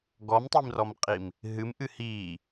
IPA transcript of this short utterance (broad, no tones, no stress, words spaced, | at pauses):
ɡɔmtˤimrɔmqʼim | ɦɨmʔɨ hiː